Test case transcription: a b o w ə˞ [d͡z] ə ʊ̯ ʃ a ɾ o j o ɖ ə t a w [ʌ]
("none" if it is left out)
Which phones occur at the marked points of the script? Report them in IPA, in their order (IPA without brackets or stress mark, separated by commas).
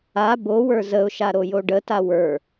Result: z, ə˞